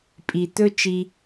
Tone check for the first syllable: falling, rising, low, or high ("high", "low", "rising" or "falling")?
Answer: low